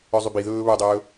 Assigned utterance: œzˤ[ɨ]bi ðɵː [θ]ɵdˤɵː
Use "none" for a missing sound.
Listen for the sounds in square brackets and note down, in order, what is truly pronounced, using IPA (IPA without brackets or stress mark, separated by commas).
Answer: y, β